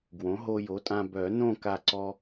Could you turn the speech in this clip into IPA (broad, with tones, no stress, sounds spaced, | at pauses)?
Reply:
ɡ w õ˩˥ ɦ o˧ j o˩˥ tʼ ã˧ b œ˨˩˦ n õ˥˨ k a˧˩ ǀ ɔ˧